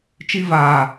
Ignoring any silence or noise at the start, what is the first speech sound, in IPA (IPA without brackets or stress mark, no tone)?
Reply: t͡ʃ